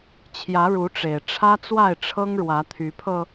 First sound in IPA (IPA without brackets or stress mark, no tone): t͡ɕʰ